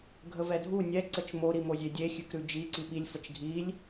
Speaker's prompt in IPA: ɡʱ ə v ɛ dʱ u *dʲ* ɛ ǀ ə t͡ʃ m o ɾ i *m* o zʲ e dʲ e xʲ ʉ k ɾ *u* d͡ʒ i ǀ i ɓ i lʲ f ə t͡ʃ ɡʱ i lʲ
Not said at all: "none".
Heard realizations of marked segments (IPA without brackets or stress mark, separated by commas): nʲ, m, ʉ